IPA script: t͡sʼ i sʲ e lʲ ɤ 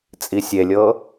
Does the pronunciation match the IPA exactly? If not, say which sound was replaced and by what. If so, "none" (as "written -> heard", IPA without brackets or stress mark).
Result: none